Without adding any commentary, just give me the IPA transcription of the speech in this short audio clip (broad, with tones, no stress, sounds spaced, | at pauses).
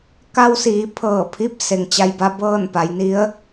k a˧ w s iː˩˧ pʰ ɤː˧˩ pʰ i˧˥ p̚ s e˩ ŋ t͡ɕ a˧ j b a˧ b ɤː˥˨ n p a˩˧ j n i˧˥ ə̯